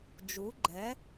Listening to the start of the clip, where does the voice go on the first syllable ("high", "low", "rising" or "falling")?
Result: rising